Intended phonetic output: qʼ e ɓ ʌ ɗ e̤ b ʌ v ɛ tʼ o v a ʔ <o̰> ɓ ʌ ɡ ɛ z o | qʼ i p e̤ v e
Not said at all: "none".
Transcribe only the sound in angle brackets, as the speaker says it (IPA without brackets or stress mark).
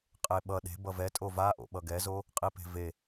o̰